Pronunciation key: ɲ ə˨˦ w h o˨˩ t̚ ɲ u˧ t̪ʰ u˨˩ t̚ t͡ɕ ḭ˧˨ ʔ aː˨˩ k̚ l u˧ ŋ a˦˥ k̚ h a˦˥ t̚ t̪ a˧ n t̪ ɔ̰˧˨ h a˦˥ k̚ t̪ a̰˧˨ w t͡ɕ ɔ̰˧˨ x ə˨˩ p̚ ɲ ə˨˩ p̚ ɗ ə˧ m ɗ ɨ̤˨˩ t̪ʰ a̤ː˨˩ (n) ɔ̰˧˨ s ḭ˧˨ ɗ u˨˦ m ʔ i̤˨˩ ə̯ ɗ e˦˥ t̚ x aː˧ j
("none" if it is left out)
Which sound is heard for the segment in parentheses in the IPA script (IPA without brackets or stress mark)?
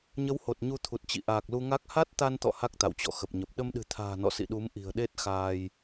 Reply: n